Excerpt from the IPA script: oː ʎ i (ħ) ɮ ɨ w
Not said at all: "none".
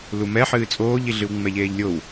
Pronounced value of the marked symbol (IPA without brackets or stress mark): none